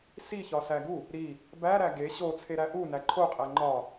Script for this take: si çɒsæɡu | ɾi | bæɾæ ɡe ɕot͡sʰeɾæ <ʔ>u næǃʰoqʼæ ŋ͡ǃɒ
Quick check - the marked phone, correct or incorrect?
correct